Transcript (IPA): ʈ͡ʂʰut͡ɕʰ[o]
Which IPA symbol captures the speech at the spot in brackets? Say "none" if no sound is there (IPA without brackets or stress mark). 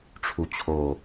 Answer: o